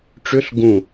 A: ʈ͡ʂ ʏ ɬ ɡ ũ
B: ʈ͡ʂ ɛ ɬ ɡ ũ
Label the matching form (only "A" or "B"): A